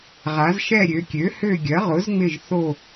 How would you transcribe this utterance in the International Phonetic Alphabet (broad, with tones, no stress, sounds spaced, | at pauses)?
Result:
ʁ a˩˧ z ʃ ɛ˦˨ ɾʲ ø˩˧ kʲ ø˩˥ h ø˦˨ ɡʲ ɐ˩˥ ʁ ʊ˩˥ z ŋ͡m ɪ˦˨ ʒ θ o˦˨